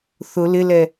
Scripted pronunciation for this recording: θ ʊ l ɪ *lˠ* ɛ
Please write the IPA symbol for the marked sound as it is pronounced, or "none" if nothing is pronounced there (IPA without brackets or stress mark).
l